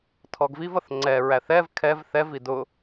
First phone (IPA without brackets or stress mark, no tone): tʰ